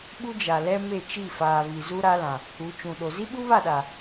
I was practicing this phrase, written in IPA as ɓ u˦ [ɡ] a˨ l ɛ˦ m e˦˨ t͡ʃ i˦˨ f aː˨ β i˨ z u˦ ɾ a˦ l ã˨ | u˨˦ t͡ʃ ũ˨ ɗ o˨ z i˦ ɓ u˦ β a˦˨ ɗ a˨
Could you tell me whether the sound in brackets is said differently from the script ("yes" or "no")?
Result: yes